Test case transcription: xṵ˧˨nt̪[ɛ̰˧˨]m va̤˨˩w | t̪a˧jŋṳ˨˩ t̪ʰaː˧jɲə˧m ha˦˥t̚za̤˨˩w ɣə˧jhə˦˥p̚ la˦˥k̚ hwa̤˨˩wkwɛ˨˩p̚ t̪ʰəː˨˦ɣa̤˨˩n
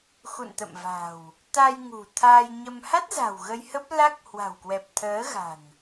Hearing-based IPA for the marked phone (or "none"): ə̰˧˨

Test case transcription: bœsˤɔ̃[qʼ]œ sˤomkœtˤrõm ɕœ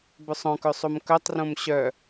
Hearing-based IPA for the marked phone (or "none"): k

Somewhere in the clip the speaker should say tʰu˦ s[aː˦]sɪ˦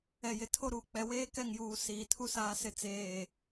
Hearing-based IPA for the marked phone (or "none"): aː˦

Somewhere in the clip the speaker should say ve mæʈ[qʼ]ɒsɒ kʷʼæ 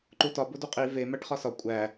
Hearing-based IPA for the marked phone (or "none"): χ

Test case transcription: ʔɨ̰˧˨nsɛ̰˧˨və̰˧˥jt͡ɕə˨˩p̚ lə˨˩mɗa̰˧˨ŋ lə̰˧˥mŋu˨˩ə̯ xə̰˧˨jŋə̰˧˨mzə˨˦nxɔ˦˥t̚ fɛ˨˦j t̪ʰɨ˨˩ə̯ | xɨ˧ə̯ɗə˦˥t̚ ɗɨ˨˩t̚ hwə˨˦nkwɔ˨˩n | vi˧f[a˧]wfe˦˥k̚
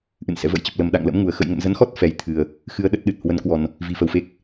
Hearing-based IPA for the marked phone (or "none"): ə˧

